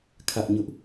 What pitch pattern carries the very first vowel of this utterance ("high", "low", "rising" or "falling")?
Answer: high